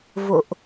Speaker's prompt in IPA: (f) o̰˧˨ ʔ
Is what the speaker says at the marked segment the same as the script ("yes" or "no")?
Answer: no